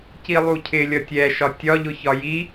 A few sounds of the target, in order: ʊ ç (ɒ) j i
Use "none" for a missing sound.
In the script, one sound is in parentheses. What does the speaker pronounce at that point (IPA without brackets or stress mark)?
ɒ